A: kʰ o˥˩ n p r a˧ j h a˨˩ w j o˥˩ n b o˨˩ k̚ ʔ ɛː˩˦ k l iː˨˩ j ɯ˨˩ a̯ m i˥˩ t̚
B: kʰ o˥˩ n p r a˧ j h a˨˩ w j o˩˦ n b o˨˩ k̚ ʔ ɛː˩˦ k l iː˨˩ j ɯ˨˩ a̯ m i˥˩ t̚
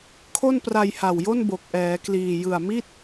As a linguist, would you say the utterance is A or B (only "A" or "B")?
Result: A